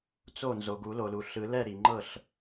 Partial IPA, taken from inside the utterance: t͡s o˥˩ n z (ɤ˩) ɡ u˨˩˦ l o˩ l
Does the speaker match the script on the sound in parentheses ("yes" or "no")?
no